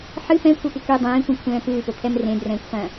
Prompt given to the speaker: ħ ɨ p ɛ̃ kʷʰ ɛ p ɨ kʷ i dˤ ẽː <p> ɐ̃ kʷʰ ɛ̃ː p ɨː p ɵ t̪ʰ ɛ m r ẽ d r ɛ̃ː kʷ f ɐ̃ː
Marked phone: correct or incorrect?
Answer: incorrect